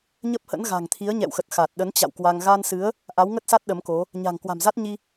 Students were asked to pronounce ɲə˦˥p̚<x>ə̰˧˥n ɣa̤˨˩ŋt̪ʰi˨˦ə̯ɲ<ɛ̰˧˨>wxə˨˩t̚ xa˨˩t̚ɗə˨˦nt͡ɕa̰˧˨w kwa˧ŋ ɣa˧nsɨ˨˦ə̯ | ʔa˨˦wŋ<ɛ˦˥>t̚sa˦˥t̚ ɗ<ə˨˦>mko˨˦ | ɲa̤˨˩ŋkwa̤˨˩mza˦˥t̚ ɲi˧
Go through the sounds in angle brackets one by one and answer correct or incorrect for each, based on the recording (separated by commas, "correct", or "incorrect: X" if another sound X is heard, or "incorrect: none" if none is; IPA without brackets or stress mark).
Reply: incorrect: h, correct, incorrect: ə˦˥, correct